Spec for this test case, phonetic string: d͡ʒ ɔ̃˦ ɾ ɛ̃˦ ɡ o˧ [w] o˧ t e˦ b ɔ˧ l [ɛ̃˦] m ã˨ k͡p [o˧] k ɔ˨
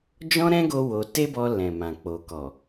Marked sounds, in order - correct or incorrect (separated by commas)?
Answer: correct, incorrect, incorrect